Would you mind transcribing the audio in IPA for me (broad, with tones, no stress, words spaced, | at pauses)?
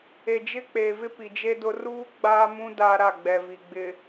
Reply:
e˨d͡ʒɪ˦k͡peː˨vɪ˦ pi˨d͡ʒe˦dʊ˦ ruː˦ ɡ͡baː˦mũ˦ daː˦ɾa˦˨ɡ͡bɛ˨ vi˨ɡ͡bɪ˨